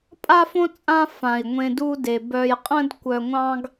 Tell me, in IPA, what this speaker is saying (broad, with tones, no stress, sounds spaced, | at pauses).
pʼ a˥ f õ˥ t͡sʼ ã˦ f ã˩ i̯ ŋʷ ẽ˨ d u˦ d e˩ b œ˨ j qʼ ə̃˥ d kʷ œ˨ ŋʷ ɑ̃˦ ɡ